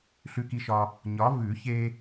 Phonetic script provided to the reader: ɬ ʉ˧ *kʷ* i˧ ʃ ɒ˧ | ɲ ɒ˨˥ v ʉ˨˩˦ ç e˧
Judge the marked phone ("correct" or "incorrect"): incorrect